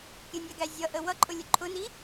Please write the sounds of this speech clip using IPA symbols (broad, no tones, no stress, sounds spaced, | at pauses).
kʲ ə nʲ æ ɡ æ zʲ ʌ ʔ ə w ʌ ǃʼ ʊ lʲ ʊ ǃʰ ʊ n i